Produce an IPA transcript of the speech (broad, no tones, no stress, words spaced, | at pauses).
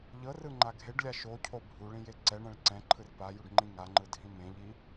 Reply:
ʎɤrɯŋ͡ǃa ɡʱeɖlʲa ʃocʰo bʱuɭĩje ǀɛɳɛ̃ɭ ǀɛ̃ǃʰɯr pajuɖŋ͡ǃĩ ŋaŋ͡ǃɯdʱĩ mẽʎi